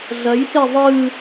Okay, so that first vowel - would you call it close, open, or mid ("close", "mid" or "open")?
open